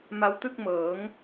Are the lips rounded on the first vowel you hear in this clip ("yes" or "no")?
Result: no